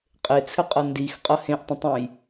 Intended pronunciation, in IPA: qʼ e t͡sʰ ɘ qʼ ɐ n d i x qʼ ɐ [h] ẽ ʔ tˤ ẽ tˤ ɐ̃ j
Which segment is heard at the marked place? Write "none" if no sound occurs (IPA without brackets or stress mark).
h